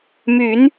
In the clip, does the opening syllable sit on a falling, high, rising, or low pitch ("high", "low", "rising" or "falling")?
rising